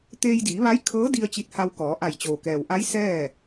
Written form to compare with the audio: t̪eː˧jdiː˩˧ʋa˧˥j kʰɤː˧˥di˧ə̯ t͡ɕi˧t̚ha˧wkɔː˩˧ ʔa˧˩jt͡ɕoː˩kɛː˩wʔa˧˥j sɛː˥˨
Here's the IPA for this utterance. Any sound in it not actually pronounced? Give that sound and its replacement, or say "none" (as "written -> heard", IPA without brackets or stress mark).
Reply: none